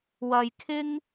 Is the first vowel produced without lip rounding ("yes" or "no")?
yes